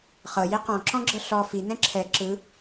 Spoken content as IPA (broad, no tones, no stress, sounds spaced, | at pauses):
χ ɤ j i q ɔ̃ ǁ ɔ̃ ɡ͡ǁ ɤ ɬ ɔ f i n ɛ̃ ǁʰ ɛ ǁ ɯ